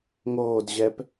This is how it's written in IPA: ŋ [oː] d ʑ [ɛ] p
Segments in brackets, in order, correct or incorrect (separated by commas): correct, correct